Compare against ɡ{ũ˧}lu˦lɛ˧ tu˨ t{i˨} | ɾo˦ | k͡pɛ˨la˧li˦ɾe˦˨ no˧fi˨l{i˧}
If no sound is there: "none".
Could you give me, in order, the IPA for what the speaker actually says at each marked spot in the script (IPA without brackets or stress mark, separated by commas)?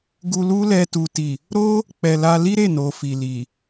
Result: u˧, i˨, i˨